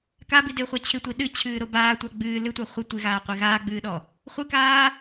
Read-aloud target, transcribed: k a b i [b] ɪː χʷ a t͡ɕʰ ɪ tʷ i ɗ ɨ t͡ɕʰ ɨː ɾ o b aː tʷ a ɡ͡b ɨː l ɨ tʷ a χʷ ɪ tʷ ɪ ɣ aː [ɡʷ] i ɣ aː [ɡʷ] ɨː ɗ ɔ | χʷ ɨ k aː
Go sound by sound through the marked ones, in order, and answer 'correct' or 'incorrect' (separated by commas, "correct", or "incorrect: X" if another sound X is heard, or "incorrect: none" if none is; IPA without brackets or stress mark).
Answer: incorrect: d, incorrect: qʷ, incorrect: ɡ͡b